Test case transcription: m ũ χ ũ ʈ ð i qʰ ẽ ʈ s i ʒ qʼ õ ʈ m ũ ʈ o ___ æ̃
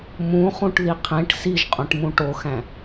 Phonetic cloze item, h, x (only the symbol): x